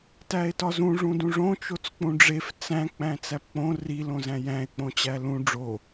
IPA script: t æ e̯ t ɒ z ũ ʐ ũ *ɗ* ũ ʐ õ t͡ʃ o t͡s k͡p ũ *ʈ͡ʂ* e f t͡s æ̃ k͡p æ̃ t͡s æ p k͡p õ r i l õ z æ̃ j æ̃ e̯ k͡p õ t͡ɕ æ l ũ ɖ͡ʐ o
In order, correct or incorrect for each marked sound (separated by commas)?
incorrect, incorrect